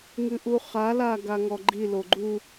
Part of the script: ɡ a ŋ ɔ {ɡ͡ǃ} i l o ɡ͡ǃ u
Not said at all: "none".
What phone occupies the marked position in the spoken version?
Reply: ɡ͡ǃ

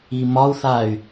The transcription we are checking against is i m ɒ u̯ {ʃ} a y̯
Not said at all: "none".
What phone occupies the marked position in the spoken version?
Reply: θ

